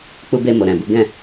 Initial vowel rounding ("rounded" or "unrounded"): rounded